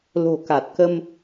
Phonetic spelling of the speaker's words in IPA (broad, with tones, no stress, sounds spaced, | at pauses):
l o̤˨˩ k a˨˩ t̚ k ə˧ m